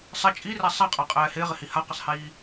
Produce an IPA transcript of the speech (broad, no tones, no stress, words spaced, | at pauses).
sˤɪ t͡ʃʼirɛ sˤaqʼaqʼɛː hɪːʁɪhi haqɪsˤhiː